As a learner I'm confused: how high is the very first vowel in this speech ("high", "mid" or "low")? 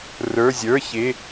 mid